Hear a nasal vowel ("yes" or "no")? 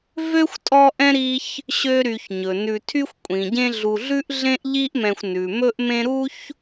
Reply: yes